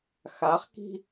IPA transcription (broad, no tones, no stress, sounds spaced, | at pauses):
x a χ k i̤